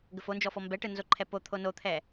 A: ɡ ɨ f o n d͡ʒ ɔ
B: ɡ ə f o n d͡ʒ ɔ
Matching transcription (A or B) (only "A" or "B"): B